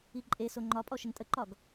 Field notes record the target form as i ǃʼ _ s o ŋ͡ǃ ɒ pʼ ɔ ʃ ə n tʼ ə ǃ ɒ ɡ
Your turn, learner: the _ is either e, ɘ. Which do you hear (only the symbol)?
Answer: e